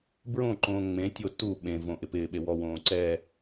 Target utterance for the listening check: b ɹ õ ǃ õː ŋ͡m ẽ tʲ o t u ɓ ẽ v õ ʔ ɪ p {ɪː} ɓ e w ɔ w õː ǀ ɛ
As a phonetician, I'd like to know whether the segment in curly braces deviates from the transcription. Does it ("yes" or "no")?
no